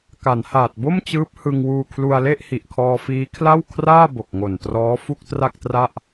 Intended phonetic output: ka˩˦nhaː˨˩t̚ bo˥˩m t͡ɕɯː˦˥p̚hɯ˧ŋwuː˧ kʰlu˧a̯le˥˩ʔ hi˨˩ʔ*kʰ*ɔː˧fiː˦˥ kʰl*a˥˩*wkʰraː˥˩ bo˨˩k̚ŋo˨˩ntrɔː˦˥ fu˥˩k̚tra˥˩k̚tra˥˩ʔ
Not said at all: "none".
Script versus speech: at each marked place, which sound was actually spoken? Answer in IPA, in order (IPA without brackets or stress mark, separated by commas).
kʰ, a˥˩